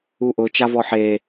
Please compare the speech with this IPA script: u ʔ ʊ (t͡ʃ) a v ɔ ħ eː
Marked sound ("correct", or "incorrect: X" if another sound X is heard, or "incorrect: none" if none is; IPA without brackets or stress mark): correct